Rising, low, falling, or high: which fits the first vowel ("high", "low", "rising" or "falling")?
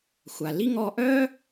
low